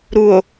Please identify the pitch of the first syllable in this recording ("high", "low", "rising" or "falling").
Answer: low